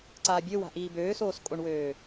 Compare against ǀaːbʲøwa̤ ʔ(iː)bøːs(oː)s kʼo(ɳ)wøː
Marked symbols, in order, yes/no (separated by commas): yes, yes, yes